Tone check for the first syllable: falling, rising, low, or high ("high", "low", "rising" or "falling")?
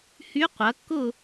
rising